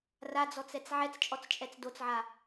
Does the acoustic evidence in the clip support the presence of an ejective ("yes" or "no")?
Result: yes